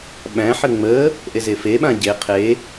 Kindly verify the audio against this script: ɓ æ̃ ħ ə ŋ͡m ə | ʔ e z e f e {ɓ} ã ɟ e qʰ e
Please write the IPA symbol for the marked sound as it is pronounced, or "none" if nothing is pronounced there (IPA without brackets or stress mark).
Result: ɓ